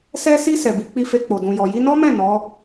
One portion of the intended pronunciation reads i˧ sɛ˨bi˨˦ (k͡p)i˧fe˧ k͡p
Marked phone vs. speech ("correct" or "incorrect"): correct